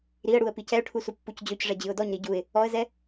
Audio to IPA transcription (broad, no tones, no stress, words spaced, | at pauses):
ɾiə̯ɽuə̯ picɛʊ̯ʈʰu supːucd͡ʑøcʐɛ d͡ʑɨʊ̯dɔɲɾi ɟuɪ̯ | ɔə̯zɛ